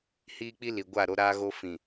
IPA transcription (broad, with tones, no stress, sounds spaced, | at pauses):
h iː˦ k͡p i˦ l i˨ ɡʷ a˦˨ ɾ o˦ ɾ aː˦ ɣ o˦ f ĩ˨